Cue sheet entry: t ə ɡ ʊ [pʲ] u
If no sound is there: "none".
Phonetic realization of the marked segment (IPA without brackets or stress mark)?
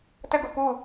p